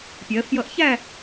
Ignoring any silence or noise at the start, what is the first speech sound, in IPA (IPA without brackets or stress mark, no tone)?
pʲ